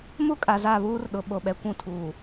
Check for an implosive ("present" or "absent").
present